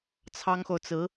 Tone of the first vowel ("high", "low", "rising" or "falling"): high